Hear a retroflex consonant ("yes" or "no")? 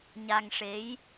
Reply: yes